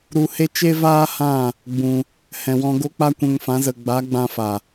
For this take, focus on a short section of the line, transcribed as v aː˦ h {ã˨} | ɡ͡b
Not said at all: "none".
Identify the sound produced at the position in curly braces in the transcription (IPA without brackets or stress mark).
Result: ã˦˨